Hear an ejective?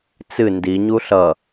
no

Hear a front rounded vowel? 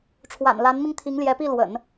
no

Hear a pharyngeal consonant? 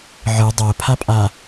yes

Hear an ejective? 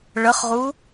no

